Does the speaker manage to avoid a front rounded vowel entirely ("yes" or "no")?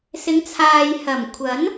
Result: yes